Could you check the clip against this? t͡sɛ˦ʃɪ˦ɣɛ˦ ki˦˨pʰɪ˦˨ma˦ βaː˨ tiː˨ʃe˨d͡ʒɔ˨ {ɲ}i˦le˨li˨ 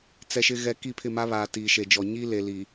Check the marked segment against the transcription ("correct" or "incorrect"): correct